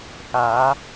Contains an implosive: no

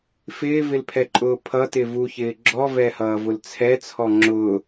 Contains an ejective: yes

